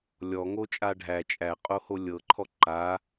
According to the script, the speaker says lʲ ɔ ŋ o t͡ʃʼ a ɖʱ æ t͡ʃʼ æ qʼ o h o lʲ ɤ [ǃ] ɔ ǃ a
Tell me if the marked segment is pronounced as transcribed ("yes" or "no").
no